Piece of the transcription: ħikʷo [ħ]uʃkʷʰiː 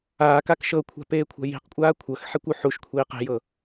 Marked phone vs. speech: correct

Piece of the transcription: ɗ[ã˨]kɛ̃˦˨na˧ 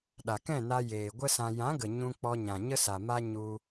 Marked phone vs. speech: incorrect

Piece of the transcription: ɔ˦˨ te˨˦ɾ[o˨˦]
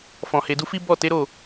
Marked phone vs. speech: incorrect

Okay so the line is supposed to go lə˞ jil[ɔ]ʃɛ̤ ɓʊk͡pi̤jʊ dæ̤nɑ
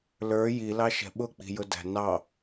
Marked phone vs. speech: incorrect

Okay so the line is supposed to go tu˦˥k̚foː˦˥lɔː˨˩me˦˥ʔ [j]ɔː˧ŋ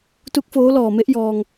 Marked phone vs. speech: correct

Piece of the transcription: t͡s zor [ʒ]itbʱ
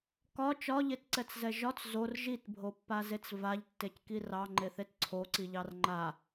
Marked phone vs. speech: correct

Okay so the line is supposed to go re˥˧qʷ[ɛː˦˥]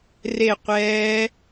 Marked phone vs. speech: correct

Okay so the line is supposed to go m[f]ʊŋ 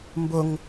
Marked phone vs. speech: incorrect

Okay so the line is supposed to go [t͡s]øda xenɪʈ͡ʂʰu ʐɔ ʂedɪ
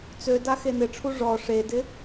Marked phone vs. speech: correct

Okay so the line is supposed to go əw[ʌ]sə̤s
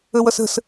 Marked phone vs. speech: correct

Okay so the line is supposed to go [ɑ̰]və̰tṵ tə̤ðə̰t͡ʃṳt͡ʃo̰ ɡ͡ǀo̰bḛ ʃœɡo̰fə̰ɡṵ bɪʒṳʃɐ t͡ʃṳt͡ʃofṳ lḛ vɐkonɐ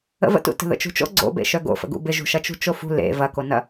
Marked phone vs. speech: incorrect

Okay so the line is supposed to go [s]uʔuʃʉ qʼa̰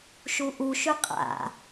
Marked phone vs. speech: incorrect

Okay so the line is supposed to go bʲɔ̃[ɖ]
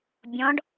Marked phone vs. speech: correct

